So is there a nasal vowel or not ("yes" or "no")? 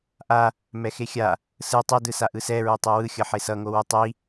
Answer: no